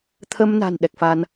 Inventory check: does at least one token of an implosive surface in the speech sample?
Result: yes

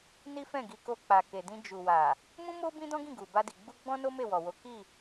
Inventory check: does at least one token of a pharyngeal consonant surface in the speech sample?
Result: no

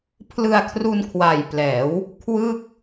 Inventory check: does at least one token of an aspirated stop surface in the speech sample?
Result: yes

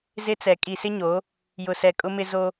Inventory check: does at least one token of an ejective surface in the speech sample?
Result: yes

